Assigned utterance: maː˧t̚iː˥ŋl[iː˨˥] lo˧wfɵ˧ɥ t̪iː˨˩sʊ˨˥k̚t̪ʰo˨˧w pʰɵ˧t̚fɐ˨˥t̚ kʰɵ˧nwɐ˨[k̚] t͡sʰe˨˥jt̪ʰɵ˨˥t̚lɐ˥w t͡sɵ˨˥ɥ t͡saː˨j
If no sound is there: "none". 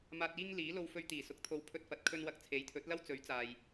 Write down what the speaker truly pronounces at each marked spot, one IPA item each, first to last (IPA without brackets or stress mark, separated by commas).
iː˨˥, k̚